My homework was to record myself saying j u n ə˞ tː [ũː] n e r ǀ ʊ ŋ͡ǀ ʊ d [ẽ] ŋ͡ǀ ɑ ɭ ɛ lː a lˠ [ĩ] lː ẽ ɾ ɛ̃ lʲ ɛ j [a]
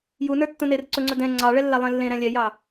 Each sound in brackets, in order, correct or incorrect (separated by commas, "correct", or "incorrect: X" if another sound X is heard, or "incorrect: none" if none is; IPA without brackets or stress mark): incorrect: ũ, incorrect: ɛ̃, incorrect: ẽ, incorrect: ɑ